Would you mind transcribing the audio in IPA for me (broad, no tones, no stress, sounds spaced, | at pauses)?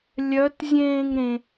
lʲ œ t zʲ ẽː ŋ ɾ ẽ